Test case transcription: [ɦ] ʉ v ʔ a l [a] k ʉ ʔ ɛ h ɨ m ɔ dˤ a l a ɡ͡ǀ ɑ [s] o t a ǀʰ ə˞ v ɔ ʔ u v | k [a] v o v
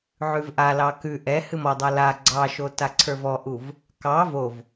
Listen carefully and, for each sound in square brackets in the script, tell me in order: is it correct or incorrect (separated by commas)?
incorrect, incorrect, incorrect, incorrect